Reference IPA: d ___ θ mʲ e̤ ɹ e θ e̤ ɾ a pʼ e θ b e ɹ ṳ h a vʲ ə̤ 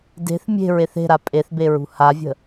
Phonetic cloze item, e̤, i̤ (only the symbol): e̤